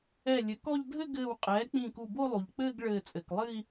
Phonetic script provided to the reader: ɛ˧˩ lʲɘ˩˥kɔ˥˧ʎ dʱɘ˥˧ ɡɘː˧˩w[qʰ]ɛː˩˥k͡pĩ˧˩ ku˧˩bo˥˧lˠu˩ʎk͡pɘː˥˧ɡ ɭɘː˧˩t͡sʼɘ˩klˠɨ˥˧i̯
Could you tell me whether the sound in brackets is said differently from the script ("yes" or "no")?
yes